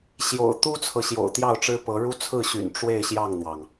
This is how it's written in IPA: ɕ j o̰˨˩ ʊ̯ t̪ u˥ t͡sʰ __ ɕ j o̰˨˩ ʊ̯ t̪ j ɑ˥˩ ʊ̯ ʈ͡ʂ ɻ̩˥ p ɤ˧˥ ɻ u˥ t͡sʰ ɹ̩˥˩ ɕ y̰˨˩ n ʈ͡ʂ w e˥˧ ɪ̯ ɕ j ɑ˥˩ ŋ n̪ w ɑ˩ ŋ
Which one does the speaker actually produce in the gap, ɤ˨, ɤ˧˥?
ɤ˨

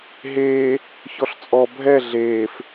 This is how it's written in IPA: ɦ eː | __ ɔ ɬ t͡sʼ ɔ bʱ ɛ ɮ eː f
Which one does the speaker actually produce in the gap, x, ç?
ç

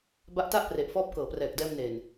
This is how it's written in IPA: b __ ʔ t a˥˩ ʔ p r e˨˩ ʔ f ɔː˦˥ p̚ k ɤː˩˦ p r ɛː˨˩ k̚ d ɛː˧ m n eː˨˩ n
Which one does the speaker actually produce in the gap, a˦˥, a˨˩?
a˦˥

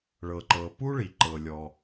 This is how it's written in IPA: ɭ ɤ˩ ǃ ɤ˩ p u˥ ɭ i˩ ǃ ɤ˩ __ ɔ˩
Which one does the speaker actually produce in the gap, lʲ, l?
lʲ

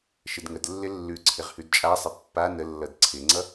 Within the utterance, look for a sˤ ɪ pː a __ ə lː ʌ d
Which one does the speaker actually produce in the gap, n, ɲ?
n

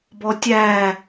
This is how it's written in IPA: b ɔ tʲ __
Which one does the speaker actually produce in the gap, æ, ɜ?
æ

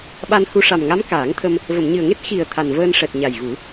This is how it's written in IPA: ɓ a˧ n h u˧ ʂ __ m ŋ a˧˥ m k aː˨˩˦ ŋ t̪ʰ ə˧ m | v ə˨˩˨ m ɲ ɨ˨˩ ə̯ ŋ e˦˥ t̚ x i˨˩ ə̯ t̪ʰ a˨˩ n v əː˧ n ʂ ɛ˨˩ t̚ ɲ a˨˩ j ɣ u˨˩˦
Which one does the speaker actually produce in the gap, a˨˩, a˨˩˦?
a˨˩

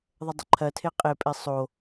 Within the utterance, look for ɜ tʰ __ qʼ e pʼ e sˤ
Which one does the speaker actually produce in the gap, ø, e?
e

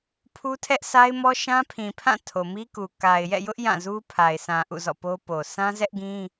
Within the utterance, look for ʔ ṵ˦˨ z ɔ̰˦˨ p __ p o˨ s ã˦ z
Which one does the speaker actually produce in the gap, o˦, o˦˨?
o˦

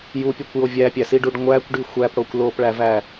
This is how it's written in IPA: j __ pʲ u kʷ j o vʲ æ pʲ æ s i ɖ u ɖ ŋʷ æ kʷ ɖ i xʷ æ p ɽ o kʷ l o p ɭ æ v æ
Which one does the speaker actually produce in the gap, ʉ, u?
u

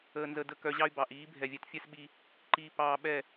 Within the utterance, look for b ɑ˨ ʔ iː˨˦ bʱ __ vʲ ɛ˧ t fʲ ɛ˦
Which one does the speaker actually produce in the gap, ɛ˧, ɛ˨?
ɛ˨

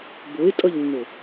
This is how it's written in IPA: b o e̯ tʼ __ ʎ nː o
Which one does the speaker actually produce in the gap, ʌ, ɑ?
ʌ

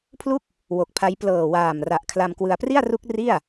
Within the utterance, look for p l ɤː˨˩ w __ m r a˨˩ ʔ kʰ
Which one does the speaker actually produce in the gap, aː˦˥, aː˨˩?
aː˨˩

